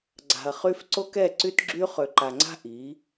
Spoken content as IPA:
ɡ͡ǀa̤˨ɐ̯χy˦f ǀo˦kɛ˦˨ǀy˦tɡ͡ǁy˦ χø˨ǃa˨ŋ͡ǀa̤˦ ʔi˨˦

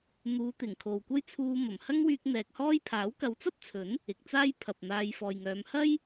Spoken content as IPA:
n̪uː˨˧t̪ɪ˨˩ŋ kʰo˨wkʷɐ˥jt͡sʰuː˧ mɐ˨˩mhɐ˥ŋwyː˧k̚ n̪ɛː˨k̚hɔː˥j pʰaː˨˥wkɐ˨˧wt͡sɐ˥p̚t͡sʰɵ˨˥n | ɪ˨k̚t͡saː˥j pʰɐ˨p̚n̪aː˧jfɔː˨jŋœː˨˧m hɐ˥j

